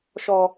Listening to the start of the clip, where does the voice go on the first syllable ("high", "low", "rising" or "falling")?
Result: low